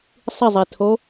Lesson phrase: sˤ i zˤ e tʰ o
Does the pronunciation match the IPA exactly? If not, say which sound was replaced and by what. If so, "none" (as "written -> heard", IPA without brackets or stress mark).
none